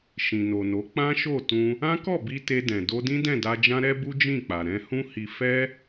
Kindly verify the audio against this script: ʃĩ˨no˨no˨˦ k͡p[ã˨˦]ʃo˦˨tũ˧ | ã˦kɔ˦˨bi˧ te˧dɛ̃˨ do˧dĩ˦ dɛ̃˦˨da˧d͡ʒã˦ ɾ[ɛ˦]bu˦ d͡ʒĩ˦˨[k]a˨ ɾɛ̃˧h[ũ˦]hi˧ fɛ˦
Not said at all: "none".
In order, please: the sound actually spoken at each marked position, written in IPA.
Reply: ã˦, ɛ˦, k͡p, ũ˦

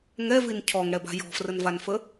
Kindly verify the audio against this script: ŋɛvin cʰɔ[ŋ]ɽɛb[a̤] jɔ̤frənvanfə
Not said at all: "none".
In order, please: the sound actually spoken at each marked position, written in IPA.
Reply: ŋ, a̤

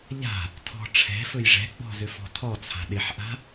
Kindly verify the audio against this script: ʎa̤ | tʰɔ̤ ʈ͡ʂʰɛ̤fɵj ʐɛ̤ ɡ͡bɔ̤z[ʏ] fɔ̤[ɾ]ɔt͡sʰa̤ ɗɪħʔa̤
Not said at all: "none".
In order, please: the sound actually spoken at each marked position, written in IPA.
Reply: ʏ, tʰ

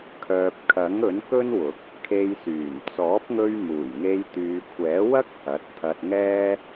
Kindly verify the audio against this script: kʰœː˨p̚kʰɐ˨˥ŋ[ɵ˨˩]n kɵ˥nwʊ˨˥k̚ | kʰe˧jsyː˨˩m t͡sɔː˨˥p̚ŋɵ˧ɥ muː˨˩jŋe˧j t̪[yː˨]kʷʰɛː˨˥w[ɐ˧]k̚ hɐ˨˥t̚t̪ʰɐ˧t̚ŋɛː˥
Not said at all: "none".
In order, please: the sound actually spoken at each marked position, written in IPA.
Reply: ɵ˨˥, yː˨, ɐ˥

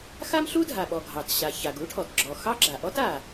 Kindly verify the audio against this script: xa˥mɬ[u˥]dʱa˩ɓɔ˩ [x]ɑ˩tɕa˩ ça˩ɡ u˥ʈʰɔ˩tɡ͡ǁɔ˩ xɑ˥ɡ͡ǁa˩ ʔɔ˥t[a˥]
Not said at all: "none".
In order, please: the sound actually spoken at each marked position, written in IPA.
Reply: u˥, ɡʱ, a˩

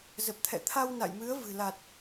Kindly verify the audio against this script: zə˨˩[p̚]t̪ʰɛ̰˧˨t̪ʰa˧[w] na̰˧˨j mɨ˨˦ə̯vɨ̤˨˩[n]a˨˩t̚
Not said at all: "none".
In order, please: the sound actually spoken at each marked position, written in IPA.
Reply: p̚, w, l

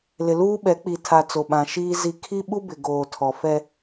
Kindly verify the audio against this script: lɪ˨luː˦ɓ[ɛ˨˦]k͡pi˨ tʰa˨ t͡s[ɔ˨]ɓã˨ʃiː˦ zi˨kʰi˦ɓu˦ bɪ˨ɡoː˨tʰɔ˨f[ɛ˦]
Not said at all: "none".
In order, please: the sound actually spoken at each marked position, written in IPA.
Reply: ɛ˨˦, o˨, ɛ˦

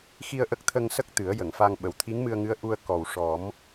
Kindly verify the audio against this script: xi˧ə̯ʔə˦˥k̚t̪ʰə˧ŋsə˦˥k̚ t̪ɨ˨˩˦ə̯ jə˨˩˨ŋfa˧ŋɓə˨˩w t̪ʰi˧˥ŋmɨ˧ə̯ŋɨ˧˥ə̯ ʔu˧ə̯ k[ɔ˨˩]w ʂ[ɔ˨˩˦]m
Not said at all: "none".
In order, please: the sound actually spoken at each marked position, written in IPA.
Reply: ɔ˨˩, ɔ˨˩˦

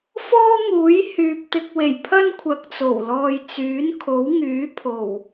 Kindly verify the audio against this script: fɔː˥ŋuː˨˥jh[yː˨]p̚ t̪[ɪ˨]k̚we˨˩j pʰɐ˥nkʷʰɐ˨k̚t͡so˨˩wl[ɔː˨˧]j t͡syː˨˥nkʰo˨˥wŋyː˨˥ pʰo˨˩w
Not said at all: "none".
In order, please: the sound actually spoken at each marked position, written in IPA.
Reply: yː˨, ɪ˨, ɔː˨

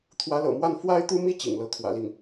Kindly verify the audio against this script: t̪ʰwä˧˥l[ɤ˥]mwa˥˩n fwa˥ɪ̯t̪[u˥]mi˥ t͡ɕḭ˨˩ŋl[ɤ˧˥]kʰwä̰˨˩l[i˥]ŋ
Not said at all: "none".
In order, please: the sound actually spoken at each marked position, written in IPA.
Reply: ɤ̰˨˩, u˥, ɤ˧˥, i˥˩

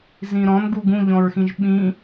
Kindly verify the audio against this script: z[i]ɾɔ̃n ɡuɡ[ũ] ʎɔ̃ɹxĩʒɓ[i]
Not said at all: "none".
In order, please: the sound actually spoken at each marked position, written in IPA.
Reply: ĩ, ũ, ĩ

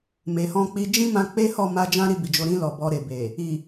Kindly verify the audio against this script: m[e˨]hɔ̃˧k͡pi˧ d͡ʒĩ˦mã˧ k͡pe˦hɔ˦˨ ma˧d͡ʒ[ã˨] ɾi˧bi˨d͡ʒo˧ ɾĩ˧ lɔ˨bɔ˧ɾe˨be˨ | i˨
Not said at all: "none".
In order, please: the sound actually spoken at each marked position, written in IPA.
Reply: e˨, ã˦

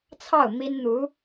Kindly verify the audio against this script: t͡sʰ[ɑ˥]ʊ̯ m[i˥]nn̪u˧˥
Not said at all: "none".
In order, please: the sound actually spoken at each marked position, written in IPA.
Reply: ɑ˥˩, i˥

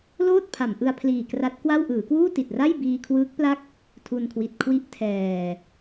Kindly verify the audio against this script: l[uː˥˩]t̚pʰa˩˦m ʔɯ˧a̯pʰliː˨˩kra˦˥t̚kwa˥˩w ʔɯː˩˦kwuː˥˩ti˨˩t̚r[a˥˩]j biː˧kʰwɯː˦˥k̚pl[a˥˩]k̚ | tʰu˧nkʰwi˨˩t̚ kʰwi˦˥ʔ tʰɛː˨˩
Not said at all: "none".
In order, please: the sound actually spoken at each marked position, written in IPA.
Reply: oː˥˩, a˥˩, a˥˩

